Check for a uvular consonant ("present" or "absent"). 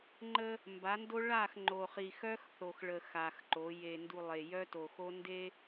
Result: present